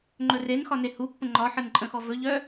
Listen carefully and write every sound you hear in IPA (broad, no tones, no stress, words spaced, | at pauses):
ŋ͡ǃɵrenxɒ nehupːə̃ ŋ͡ǃɒħən ǃʼə̃xɔvɵʎœ